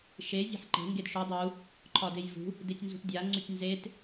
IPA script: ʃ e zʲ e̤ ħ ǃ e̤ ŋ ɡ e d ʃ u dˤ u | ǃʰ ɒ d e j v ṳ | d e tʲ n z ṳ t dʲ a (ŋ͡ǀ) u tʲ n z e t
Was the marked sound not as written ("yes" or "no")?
no